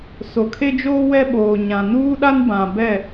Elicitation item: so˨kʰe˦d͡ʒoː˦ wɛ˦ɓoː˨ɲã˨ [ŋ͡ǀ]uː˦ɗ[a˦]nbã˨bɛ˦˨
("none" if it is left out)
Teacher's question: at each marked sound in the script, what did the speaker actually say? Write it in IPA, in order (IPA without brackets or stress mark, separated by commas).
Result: n, a˦